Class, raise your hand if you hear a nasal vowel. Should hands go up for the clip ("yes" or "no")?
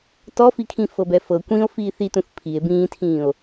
yes